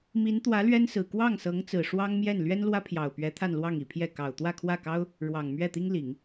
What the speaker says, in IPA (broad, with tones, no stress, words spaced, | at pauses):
mi˧˥nt̪wä˧˥ lɥɛ˥nsɹ̩˨˩ kwɑ˥˩ŋsɤ˧˥ŋt͡sɹ̩˨˩ ʂwɑ˥ŋmjɛ˥˩n lɥɛ˥nlwä˥pʰjɑ˨˩ʊ̯pɥɛ˧˥ t̪ʰa˥˧nlwɑ˥˩ŋi˨˩pʰjɛ˥˩ kɑ˨˩ʊ̯ t̪wä˥˧kʰwä˥˩kɑ˥ʊ̯ | ɻwɑ˨˩ŋ mɥɛ˥˩t̪i˥ŋli˨˩˦ŋ